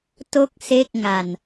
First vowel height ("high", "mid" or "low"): mid